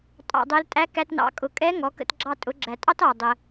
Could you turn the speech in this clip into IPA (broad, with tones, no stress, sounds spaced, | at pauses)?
tʼ ɑ̰˧ dˤ ɛ˧˥ l tʼ æ˧˥ k æ˧ t n ɑ̰˩˧ kʼ ʊ˩˧ kʼ ɛ˧˥ ŋ ɔ˩˧ k ə̰˧ t ɡ͡ǁ ɑ˧ tʼ ʊ˩˧ ɡ͡ǁ æ˩ tʼ ɑ˥ t ɑ˩ dˤ ə˩